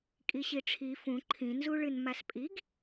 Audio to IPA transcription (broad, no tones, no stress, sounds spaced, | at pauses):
kʼ i ɕ i ʈ͡ʂʰ i f ũ ǃʰ ĩ n z u ɭ ɨ n m a s pʼ i ɡ